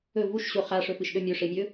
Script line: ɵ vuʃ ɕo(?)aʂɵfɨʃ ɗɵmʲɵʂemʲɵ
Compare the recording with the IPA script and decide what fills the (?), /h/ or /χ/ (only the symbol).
χ